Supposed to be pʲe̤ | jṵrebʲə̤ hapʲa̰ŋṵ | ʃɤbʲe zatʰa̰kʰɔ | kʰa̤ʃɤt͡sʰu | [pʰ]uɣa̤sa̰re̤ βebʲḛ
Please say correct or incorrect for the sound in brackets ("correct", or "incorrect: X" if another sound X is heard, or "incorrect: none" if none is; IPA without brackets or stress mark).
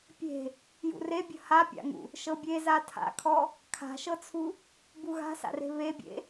incorrect: b